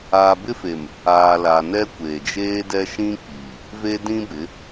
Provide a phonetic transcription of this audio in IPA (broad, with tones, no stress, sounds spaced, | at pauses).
aː˨ b ɪ˦ f e˨ m | aː˨ l a˨ n ɛ˦ kʷ eː˨ d͡ʒ eː˦ d ɛ˦ ʃ ĩ˦ k͡p iː˨ | v e˦ d ĩ˦ b ɪ˨˦